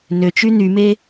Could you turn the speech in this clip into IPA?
nøt͡ʃy nyme

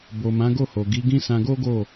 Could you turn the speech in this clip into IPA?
bo˨mã˨˦ ɡo˦˨ho˨ ɡi˨˦ɡĩ˦sã˧ ɡo˦ɡo˦˨

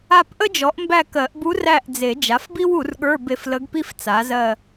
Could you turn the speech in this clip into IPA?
a˦˨pʔə˥d͡ʒɔ˩˥ʔ mbæ˦˨kɜ˨˩˦ʔbu˧˥ ræ˦˨ʔd͡ze˨˩˦ d͡ʒa˩˥fbi˥wu˨˩˦rɠə˞˧˥˧ be˦˨flə˧˥ɡpi˥f t͡sa˩˥zɜ˦˨

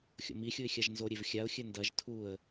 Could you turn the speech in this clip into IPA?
xʲo̰mixʲuɪ̯ xʲaʒnzoɾʲev xʲaʊ̯xʲɘ ndɐʒ tʰuə̯

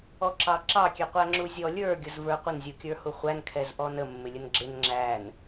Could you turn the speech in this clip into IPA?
ɔǁɑǁɑ kʲɛqʷæŋ͡ǁuzʲɔ lʲə˞ ɡʲʊzvə˞qʷɪn zʲukʲə˞huχʷæn kʰɛzʔɔnə mːɪlʲənɡ͡ǁɪn ŋ͡ǁæn

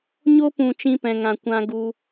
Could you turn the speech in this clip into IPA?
ɲo˦pũ˨ t͡ʃĩ˧pɛ̃˨ŋã˨ kʷã˧ɡu˧

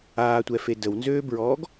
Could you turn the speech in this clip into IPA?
aːtʷɛfe dəwnzøːbɹɔːɡ

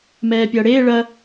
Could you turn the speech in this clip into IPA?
mɛːpʲʌːɽeː ɭɐ

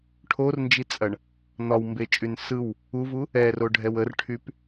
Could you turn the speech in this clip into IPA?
ʈʰornd͡ʒit͡sʼɐɳ | n̪ɒwmbet͡ʃʼyn sɯw | uvu | ɛroɖʱɛw ərʈʰyp

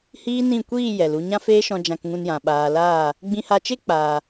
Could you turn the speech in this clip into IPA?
hiː˦nĩ˦˨ kʷiː˦˨ jɛ˨l u˧ ɲã˦feː˦ʃɔ̃˧ d͡ʒã˧kŋũ˧njã˨ ɓaː˨ laː˦˨ | ɡ͡bĩ˧ha˧t͡ʃe˦k͡paː˨

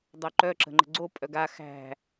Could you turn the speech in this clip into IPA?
dˤoǃœ ǁə̤ŋ͡ǃə̤ɡ͡ǀo pʼœɡa xæ̤

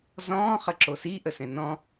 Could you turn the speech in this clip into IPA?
zɔ̃ː χəǁosi ʔəsɛ̃nɔ̃

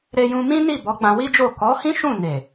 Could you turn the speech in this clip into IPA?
ɾe˧jũ˧ mĩ˦ ni˦˨bɔ˨˦ ɡ͡bã˧wi˦d͡ʒo˦˨ kɔ˨˦hĩ˦ ʃũ˦˨ ne˨

